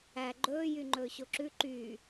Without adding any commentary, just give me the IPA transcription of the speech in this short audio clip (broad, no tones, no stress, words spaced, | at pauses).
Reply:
æ ɡ͡ǃɵː jyŋ͡ǃɵːɕoǁʉ ǃyː